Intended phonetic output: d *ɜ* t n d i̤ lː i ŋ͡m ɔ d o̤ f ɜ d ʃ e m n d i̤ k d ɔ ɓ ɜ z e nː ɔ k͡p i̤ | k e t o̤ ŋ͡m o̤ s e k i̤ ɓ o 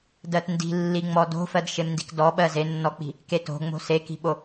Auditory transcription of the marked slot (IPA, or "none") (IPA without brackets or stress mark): ɜ